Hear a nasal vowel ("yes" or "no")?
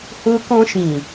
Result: yes